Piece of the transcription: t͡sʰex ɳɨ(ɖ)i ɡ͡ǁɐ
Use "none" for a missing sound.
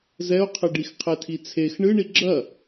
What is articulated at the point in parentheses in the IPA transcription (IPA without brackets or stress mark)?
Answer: ɳ